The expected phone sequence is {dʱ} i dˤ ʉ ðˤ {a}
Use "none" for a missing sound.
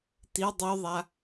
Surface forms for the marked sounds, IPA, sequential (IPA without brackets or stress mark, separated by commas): t, a